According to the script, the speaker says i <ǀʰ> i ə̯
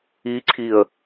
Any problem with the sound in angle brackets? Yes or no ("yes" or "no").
no